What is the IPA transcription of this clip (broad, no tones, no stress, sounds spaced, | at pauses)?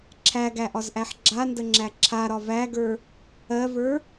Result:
ǁʰ æ ɡ æ ʔ ɒ z ʔ æ ħ ɡ͡ǁ a n d ə ŋ͡ǁ æ ǁʰ a ɾ ɒ v æ ɡ ə˞ | ɜ v ə˞